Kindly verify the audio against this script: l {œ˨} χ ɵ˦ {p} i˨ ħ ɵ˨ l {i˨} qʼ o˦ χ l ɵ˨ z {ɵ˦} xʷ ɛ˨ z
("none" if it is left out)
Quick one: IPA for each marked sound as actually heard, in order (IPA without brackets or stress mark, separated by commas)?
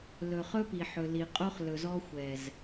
ɵ˨, p, i˨, ɔ˦